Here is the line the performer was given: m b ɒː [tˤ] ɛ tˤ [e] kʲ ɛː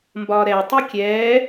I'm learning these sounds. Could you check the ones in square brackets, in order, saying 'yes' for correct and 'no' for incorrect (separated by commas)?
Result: no, no